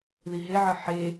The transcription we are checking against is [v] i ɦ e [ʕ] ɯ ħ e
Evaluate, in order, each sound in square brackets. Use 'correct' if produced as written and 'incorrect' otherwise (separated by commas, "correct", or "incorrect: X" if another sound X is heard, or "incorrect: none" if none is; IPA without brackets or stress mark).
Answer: incorrect: ð, correct